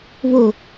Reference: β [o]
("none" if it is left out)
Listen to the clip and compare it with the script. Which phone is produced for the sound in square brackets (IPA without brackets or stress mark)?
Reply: o